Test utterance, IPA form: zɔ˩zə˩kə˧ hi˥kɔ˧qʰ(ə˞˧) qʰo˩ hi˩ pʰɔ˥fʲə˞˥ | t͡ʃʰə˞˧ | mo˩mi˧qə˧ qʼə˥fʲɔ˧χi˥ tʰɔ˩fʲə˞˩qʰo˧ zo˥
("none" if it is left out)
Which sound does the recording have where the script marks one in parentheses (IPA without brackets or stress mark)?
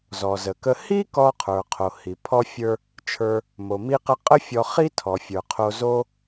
ə˞˩